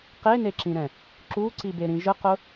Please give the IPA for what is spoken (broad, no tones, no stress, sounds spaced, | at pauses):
q e n e ǁ ĩ ɾ ɛ̃ | ǁ u ǀ i b e ɾ ĩ ʒ ə q ʊ